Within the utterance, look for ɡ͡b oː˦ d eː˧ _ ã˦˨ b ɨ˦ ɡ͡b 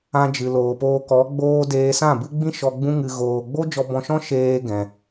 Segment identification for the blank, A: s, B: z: A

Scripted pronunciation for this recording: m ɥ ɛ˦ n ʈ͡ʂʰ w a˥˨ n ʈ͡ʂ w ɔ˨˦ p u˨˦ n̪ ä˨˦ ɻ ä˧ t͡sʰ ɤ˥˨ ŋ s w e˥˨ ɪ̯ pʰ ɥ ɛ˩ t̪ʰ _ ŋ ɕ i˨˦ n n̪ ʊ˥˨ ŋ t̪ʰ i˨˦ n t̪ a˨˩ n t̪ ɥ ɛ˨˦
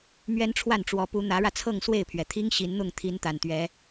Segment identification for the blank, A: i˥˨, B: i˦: B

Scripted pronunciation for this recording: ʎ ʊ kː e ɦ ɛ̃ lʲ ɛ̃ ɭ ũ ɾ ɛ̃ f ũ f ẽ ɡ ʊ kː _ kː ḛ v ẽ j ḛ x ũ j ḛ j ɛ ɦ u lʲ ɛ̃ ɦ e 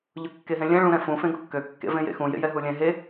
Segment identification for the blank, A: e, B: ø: B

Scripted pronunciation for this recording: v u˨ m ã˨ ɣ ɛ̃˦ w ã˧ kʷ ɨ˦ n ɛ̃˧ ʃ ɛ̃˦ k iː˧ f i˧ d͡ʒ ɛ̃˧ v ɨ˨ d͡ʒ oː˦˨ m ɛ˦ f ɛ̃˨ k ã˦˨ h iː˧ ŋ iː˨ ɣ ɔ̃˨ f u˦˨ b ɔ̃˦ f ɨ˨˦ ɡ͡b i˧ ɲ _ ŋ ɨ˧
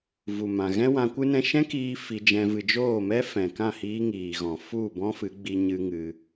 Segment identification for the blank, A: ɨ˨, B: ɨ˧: B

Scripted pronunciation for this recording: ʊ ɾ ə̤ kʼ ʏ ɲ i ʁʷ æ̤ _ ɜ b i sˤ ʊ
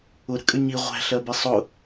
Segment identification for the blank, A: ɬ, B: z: A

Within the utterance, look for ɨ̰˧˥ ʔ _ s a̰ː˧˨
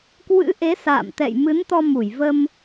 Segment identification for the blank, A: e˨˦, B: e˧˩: A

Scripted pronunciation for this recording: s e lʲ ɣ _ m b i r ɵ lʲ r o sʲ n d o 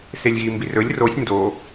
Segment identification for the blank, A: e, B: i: B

